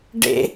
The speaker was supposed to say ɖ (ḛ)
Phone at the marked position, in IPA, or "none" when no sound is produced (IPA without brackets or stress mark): ḛ